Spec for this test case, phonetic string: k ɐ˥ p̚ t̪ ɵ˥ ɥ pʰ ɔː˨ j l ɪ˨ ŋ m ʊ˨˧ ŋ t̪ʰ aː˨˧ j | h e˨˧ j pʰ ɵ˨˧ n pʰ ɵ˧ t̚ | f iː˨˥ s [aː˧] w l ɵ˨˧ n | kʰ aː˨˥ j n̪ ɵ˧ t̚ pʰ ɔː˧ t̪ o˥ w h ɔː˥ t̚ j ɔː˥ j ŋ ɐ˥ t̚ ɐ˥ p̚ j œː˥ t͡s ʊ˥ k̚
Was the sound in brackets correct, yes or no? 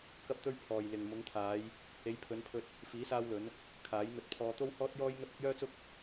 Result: yes